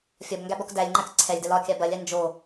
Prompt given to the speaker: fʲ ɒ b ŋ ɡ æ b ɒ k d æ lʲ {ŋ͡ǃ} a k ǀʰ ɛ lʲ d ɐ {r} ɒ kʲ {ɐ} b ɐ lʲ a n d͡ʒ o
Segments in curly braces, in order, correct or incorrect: correct, incorrect: l, incorrect: a

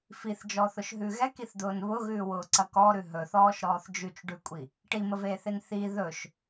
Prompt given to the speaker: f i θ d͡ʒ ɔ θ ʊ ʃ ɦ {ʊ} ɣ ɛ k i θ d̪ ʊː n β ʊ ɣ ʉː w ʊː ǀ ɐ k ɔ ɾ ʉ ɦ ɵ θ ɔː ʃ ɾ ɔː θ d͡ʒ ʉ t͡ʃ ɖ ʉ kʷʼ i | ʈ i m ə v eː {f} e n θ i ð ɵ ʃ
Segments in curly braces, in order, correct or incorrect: incorrect: ʉ, incorrect: θ

